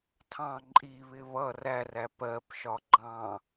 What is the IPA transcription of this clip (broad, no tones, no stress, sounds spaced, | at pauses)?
tʰ ɑ̃ ǃʼ i β ɪ β ʌ r æ r æ p ɜ p ʃ ɒ ɡ͡ǃ ɑ̃